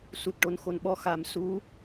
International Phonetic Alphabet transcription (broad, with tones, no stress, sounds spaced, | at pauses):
s u˨˩ t̚ ʈ o˨˩˦ n x o˨˩ n ɓ ɔ˧ x a˨˩ m s u˧˥